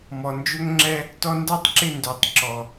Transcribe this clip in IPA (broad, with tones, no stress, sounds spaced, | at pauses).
m ɔ˨ n d͡ʒ ɵ˦ ŋ ŋ͡ǁ ɛ˧ | t ɔ˧ n d a˦ tˤ ǁ ɪ˦˨ n d ø˨ tˤ ǁ ɔ˨